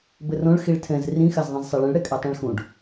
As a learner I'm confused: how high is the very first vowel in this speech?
mid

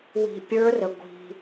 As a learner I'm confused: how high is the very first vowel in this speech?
high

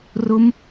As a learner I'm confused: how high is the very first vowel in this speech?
high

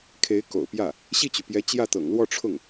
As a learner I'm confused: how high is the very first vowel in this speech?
mid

